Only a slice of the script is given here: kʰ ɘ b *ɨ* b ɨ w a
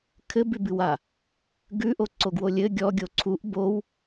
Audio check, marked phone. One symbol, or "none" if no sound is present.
ʉ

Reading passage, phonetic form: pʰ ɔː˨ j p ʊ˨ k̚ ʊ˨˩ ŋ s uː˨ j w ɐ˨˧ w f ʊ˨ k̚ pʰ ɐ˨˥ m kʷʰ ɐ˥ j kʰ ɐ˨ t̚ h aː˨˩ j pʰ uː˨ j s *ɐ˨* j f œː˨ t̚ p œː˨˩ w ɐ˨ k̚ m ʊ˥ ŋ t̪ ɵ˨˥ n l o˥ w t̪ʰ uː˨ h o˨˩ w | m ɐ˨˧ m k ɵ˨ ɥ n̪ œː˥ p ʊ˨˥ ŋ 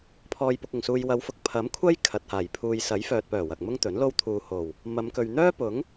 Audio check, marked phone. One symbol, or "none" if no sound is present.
ɐ˨˥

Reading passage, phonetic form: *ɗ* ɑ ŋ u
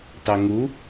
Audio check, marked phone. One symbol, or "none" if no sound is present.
t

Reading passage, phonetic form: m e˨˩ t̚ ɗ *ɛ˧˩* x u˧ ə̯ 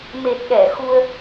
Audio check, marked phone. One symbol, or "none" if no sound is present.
ɛ˧˩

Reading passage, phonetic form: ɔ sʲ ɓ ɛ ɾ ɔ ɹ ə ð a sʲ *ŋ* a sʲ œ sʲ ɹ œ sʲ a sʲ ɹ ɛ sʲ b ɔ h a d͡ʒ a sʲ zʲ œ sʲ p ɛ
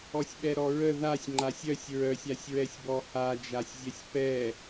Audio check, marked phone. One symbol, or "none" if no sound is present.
ŋ͡ǃ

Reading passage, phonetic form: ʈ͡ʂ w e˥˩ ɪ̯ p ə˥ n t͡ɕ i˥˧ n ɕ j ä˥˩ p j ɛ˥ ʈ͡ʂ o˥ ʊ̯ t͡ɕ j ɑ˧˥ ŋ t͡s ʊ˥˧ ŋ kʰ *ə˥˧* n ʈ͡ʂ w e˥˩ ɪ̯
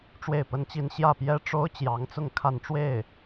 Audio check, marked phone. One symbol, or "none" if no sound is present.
a˥˧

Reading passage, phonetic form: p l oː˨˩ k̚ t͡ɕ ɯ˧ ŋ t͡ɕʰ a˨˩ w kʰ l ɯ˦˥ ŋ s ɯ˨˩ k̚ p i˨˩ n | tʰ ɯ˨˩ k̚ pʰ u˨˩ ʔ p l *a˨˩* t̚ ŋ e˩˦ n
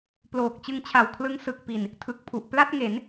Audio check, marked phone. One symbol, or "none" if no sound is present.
a˥˩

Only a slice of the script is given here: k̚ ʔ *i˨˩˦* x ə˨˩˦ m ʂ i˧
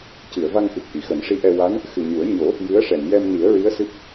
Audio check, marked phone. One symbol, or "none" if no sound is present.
i˨˩˨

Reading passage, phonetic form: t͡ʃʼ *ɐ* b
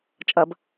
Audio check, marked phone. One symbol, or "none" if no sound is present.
ɐ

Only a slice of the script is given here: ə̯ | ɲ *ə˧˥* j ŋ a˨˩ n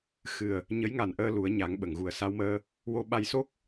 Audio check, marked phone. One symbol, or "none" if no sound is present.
ə˧˥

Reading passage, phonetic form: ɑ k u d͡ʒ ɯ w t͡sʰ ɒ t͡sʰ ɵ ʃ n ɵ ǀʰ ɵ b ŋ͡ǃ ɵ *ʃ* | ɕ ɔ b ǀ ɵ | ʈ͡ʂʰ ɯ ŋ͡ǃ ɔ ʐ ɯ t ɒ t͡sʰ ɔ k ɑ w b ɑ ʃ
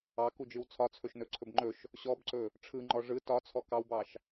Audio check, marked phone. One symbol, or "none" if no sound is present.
ʃ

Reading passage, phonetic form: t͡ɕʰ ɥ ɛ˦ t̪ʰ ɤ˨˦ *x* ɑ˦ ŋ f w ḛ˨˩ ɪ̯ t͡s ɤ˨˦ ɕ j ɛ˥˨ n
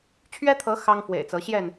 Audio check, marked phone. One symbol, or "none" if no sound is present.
x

